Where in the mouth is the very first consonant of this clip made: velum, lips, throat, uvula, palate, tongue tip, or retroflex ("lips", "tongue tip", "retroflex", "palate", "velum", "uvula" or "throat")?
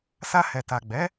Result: tongue tip